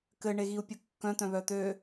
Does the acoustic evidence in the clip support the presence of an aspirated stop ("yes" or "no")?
no